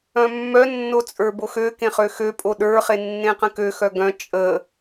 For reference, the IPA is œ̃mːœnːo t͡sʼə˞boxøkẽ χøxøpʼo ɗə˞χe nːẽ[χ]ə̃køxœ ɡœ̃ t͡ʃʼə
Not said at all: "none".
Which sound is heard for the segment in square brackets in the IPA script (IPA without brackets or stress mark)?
q